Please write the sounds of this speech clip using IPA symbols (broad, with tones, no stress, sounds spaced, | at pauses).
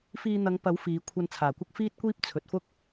f iː˧ n̪ ɐ˨˧ ŋ p ɐ˨˥ w f iː˨˧ kʷʰ ɐ˧ n t͡sʰ aː˨˩ kʷ ɐ˥ k̚ f iː˥ t̚ kʷ iː˥ p̚ t͡sʰ ɵ˨ t̚ f ʊ˥ k̚